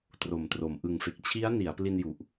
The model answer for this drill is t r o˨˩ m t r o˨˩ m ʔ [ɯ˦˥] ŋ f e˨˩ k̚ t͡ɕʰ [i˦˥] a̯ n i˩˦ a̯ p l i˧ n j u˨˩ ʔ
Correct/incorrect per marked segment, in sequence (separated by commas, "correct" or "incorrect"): incorrect, correct